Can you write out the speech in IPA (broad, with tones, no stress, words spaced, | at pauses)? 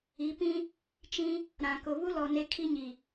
i˨˦ pĩ˦ | t͡ʃĩ˦ | ɾã˨kʊ˨βu˦lɔ˨ ne˦kʰi˦ɲi˨